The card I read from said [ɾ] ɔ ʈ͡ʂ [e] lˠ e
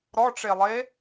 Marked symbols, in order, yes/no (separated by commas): yes, yes